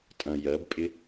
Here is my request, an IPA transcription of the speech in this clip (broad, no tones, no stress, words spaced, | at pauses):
tʼɐ̃ jɜbpʼɪ